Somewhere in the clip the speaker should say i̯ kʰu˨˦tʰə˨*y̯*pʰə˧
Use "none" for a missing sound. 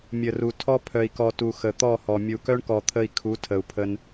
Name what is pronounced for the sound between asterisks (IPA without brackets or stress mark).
u̯